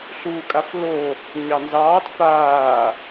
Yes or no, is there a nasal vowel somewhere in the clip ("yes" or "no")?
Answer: no